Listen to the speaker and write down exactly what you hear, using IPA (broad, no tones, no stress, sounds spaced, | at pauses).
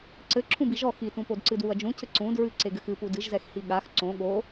ǀ ɘ ǁʰ ũ b i ʒ ɔ x i t ũ p o d ǀ ɨ d w u ɐ̯ d͡ʒ ũ cʰ ɘ ǀ ũ d ɹ ɨ ǀ e ɡ ɘ x ɨ p u d ɨ ʒ z ɛ x h i ɠ a x ǀ õ ɠ o